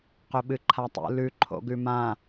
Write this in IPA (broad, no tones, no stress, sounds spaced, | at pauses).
q ɵ ɓ ɨ ǃʰ a tˤ ṵ l ʉ ǃʰ o̰ ɡ ʉ m ã